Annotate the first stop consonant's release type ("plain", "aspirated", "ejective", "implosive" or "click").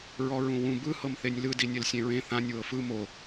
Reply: plain